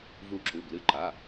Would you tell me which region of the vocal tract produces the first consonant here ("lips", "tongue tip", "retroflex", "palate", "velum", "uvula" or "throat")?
lips